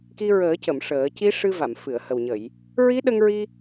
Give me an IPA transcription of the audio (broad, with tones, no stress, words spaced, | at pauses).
ki˧ɹəː˨˩˦cə˨˩˨m ʂəː˨˩˦ ci˧˥ʂɨ˧va˨˩˨m fɨ˨˩˨ə̯hə˨˩wɲə˨˩˨j | ɹi˧˥ɗə˧ŋɹi˧